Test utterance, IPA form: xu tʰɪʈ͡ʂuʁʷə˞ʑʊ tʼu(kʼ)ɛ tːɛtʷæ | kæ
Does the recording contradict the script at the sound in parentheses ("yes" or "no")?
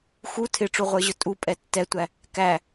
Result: yes